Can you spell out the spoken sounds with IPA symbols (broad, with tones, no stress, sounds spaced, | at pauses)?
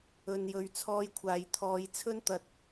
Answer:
ɵ˧ n j ɵ˧ ɥ t͡sʰ ɔː˧ j kʷʰ aː˨ j t̪ʰ ɔː˨˧ j t͡sʰ ɵ˥ n t̪ ɐ˧ t̚